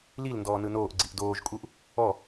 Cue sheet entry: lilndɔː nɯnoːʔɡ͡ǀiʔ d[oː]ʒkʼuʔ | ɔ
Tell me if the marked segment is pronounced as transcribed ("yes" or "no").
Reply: yes